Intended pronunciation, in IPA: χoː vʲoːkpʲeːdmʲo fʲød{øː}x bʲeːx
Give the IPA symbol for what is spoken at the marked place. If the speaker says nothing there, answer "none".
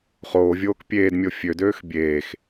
øː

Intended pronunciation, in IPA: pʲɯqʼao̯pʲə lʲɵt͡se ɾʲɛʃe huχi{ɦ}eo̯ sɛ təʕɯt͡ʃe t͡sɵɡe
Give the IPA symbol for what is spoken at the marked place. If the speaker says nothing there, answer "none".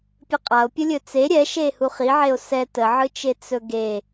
ʕ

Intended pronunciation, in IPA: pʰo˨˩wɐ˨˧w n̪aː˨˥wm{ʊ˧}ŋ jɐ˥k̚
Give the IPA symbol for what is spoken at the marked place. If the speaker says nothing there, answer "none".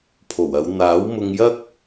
ʊ˧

